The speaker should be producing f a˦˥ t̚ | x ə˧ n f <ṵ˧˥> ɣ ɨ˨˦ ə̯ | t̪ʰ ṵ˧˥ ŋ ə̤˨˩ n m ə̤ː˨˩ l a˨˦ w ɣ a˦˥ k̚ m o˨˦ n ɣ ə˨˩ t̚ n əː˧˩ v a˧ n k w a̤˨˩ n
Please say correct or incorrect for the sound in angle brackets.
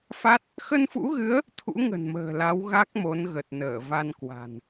correct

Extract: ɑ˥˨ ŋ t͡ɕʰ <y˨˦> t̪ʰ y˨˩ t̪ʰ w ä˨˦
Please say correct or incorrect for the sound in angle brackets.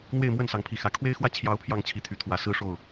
incorrect: i˨˦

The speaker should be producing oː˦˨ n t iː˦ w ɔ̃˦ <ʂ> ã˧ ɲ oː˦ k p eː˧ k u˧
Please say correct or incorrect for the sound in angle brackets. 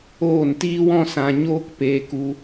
incorrect: s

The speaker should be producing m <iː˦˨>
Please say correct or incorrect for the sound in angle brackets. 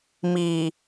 incorrect: iː˨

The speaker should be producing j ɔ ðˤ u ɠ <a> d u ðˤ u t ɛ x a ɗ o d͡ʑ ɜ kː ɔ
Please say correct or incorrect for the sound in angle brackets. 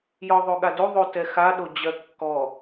correct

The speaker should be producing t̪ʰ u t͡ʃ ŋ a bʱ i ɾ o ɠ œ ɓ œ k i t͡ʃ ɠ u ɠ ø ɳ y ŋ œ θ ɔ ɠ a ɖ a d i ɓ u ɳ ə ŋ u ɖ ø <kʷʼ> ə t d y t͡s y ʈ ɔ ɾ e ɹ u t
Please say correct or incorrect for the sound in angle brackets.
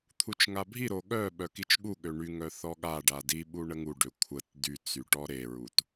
incorrect: kʷʰ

